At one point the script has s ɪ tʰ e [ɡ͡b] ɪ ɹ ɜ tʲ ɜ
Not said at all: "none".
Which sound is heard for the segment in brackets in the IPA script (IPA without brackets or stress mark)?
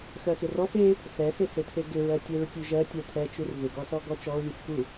ɡ